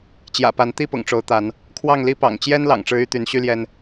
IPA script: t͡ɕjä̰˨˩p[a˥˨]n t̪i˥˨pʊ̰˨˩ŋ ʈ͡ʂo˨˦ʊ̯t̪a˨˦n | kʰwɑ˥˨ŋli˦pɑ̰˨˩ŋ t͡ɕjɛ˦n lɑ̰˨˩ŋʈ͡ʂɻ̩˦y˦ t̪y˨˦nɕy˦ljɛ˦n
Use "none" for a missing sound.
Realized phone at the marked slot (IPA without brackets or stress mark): a˨˦